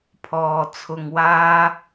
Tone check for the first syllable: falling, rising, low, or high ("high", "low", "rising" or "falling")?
low